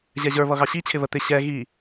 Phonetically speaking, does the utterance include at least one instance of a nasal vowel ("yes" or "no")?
no